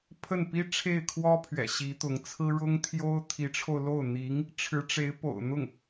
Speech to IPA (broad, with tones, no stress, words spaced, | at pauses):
pʰə˥˩npi˥ ʈ͡ʂʰe˥˩ɪ̯kʰwɔ˥pʰɥɛ̰˨˩ ɕi˧˥t̪ʊ˧˥ŋt͡sʰɹ̩˥ ɻʊ˥ŋt̪ʰjo˥ʊ̯ t̪ʰi˧˥ʈ͡ʂʰo˧ʊ̯lo˥˩ʊ̯ n̪i˧˥ŋ | ʈ͡ʂʰɻ̩˧˥ʈ͡ʂe˧˥ɪ̯ po̰˨˩ʊ̯n̪ʊ˥˩ŋ